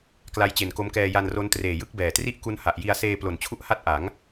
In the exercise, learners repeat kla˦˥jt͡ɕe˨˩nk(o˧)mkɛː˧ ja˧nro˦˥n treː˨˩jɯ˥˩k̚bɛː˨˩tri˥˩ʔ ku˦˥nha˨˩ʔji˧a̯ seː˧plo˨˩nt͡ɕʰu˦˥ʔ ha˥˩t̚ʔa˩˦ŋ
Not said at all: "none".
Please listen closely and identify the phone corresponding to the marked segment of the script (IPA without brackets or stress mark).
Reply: o˦˥